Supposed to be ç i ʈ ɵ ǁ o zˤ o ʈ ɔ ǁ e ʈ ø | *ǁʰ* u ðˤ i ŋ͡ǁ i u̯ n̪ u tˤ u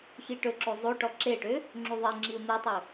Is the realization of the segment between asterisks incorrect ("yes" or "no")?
yes